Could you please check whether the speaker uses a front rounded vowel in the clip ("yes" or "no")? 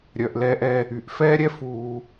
yes